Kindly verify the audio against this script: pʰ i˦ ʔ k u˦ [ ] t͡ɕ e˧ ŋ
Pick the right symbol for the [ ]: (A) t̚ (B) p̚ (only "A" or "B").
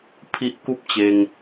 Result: B